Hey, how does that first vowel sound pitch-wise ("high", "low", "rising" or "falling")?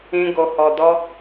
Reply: high